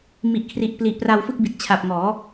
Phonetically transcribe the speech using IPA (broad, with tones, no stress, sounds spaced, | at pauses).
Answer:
m i˨˩ ʔ kʰ r i˨˩ ʔ p l i˨˩ ʔ p r a˧ w f ɯ˥˩ k̚ b i˨˩ t̚ t͡ɕʰ a˨˩ p̚ ŋ ɔː˩˦